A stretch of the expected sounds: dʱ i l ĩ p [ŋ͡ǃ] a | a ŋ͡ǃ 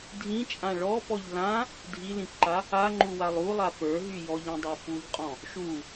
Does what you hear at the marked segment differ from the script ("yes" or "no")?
yes